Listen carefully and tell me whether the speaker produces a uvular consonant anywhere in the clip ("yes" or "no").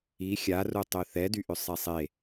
no